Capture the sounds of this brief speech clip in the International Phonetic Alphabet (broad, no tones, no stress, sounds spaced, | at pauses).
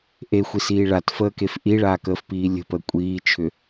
ʔ e xʷ i s iː ɭ a t f əː k e f ʔ i ɭ aː k əː f p iː lʲ ə̤ p ə kʷʼ iː t͡ʃʰ ʏ